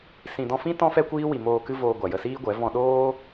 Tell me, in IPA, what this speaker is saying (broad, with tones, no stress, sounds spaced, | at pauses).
s ĩ˨ d ɔ̃˧ f ĩ˦ t ɔ̃˦ f ɛ˦ kʷ iː˦ w i˨ m oː˨ k ɨ˧ v oː˨ ɡʷ a˨ j ə˧ s iː˦ ɡʷ ɛ˨˦ v ɔ̃˧ ɗ oː˦